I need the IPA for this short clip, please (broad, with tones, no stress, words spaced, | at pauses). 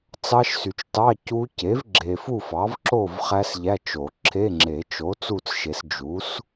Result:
t͡sɑ˦˥ʃsy˨t͡ʃ tɑ˧˥˧ cu˦˥ ce˩˥vɡ͡ǁe˨fu˥˨fɑ˩˥v ǁo˥˨v χæ˦˥sʎæ˧˥˧t͡ʃo˨˩˦ ǁʰe˧˥˧ŋ͡ǁe˨˩˦ t͡ʃo˩˥ t͡su˥˨t͡sʃe˨˩˦s d͡ʒu˩˥s